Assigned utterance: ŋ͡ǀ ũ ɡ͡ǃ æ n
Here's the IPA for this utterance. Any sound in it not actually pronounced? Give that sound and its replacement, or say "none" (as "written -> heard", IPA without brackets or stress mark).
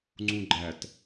n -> t